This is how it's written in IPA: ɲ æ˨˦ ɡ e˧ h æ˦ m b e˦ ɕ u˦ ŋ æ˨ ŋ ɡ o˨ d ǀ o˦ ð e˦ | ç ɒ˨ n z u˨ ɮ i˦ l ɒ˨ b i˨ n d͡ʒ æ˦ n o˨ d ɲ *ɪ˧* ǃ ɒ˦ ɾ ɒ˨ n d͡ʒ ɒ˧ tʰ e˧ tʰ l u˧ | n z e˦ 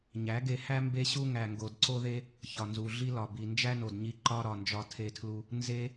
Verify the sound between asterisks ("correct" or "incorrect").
incorrect